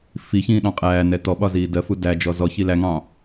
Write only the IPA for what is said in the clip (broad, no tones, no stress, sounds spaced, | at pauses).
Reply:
f i ç ĩː ɗ ɑ̃ qʼ æː n ɛ t ɔ ɓ ɒ z iː d ɜ f u d æ d͡ʒ ɔ z ɔ ç i l æ ŋ ɑ̃